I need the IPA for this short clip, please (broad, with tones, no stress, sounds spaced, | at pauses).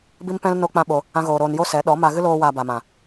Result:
b i˦ m p ɛ̃˦ l n o˦ k͡p ã˦ ɓ o˧ | ã˦ ɣ oː˧ ɾ oː˧ n j o˦ s ɛ˨˦ ɗ ɔ˨˦ m a˧ ɣ ɨ˦ l oː˦ w aː˧ b a˨ m ã˨